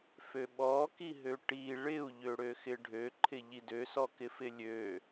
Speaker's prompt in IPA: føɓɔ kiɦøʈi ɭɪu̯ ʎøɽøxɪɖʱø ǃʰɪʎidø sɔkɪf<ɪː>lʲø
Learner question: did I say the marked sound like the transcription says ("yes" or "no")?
no